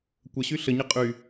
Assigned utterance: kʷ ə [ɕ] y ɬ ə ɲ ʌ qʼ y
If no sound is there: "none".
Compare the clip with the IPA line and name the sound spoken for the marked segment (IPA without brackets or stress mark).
ɕ